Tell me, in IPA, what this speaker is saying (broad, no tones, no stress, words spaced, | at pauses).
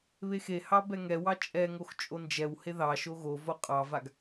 βexehɑ bɛŋɛwɑ t͡ʃʼɛŋox t͡ʃʼond͡ʒɛwhe ðɑʃo ɣo voqʼɑvaɡ